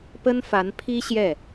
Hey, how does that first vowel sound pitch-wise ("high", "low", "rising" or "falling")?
high